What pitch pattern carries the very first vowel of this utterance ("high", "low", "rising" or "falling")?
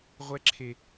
high